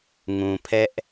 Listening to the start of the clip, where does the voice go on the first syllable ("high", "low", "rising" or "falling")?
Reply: low